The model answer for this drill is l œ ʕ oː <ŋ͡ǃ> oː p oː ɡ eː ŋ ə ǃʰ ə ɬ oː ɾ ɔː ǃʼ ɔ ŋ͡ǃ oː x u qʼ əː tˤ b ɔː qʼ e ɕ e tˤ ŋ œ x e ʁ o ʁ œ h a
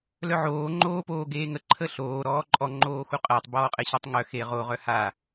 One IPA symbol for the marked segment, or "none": ŋ͡ǃ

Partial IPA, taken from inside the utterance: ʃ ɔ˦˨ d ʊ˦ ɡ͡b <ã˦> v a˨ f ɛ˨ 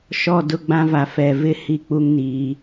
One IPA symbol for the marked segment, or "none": ã˦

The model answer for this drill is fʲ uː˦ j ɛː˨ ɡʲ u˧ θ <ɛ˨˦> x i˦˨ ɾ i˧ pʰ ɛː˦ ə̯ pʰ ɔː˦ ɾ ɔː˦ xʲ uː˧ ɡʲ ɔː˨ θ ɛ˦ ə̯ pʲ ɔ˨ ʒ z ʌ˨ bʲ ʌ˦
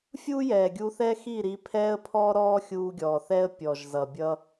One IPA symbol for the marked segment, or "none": ɛ˦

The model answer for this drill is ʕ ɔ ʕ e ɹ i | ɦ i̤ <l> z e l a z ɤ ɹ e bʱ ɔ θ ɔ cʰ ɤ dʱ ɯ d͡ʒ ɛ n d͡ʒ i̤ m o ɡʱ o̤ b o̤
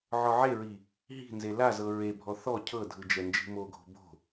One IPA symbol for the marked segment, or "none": n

